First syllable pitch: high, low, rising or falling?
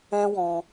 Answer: high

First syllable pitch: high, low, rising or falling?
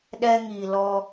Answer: high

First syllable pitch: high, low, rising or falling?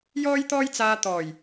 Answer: high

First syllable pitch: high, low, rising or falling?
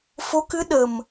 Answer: rising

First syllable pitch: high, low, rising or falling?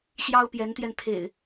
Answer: high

